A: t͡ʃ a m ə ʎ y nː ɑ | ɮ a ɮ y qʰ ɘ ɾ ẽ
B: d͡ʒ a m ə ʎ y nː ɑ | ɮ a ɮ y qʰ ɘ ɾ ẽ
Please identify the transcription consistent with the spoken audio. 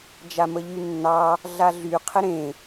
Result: B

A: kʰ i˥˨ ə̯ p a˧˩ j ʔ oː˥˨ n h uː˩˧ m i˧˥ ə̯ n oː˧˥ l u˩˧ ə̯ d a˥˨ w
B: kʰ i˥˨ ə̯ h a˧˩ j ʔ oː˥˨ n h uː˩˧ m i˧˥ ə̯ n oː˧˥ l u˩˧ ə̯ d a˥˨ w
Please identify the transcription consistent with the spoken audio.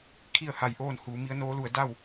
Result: B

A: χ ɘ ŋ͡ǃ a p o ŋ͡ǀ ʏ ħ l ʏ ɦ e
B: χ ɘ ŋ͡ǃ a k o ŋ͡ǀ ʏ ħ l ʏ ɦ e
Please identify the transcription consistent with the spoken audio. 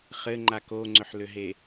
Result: B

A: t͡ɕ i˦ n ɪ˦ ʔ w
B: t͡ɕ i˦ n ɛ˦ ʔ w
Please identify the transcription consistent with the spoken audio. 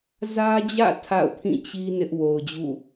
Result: A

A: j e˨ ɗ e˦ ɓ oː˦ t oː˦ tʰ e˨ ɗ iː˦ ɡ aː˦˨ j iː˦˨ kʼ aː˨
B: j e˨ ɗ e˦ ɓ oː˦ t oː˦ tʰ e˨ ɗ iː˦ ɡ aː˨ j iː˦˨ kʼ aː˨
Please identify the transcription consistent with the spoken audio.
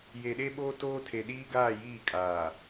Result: A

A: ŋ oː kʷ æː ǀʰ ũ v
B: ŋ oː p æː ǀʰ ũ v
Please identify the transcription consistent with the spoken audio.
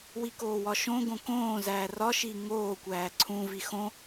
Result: A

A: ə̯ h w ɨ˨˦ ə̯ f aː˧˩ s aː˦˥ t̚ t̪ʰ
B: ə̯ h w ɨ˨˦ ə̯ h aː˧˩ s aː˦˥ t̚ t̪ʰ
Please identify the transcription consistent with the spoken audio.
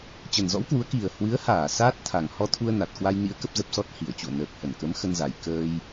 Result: B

